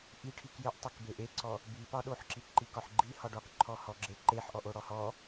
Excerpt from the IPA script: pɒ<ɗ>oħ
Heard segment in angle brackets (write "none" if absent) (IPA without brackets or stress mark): ɗ